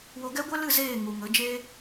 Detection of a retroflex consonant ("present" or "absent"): absent